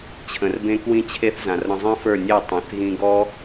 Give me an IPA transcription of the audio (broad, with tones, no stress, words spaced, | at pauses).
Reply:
t͡ɕʰə̃˧r bẽ˦kwĩ˦t͡ɕʰe˦θzã˨r ɾə̃˧zˤĩ˦fə˞˦˨nʲe˦˨ tˤẽ˨θɣĩ˧ɡɔ˦